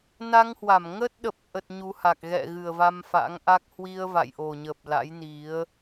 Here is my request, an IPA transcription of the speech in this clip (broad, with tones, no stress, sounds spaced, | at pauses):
n a˧ ŋ h w a˧˩ m ŋ ə˦˥ t̚ ɗ ə˨˩ p̚ ʔ ə˨˩ t̚ ɲ u˨˦ h a˨˩ k̚ ɣ ɛ̰˧˨ ɣ ɨ˨˩ ə̯ v a˧ m f a̰˧˥ ŋ ʔ a˦˥ k̚ h w i˧ ə̯ v a̰˧˨ j ʔ o˨˩ ɲ ə˨˩ p̚ l a̰˧˥ j n i˨˦ ə̯